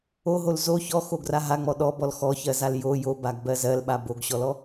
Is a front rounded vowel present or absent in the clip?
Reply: absent